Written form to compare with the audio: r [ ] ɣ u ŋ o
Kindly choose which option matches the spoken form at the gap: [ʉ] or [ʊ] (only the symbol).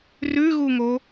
ʉ